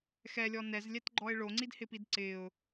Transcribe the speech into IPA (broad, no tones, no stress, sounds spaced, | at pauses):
x ɛ lʲ ɔ n ɛ z lʲ ɛ t ɡ͡ǃ ɔ ɪ̯ ɭ o ŋ͡ǀ i d h ɪ p i d ǀ ɪ ʊ̯